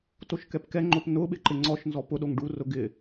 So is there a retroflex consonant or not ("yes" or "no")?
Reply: yes